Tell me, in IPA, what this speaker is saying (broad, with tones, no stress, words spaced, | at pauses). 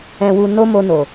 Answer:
ɛ̃˧wu˧ no˦mo˧no˨